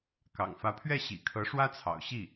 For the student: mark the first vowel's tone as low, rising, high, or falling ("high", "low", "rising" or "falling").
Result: low